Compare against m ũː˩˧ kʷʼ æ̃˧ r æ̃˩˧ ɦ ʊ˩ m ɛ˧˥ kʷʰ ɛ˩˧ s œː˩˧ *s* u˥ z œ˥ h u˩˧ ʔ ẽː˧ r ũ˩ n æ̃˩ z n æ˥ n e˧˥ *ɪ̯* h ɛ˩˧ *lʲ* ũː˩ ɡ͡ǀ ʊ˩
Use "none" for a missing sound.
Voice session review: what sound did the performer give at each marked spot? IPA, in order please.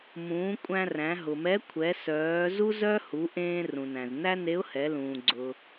z, ʊ̯, l

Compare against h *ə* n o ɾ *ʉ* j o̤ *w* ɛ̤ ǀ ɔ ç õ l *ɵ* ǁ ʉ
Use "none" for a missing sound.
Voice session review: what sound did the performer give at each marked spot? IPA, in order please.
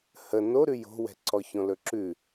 ə, ʉ, w, ɵ

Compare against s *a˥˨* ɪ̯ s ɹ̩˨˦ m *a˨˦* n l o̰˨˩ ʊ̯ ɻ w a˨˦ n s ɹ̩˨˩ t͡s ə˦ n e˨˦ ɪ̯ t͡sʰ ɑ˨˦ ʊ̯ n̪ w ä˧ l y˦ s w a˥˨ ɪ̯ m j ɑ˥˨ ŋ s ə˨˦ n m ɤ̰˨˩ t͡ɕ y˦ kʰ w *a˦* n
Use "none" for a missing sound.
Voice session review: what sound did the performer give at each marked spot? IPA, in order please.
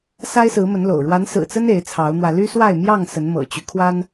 a˦, ə˨˦, a˦

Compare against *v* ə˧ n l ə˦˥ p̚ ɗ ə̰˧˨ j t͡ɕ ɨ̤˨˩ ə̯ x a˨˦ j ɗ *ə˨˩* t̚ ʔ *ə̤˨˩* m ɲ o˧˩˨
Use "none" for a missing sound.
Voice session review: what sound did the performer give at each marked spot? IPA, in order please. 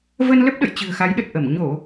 v, ə˨˩, ə˧˩

